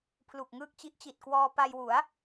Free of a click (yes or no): yes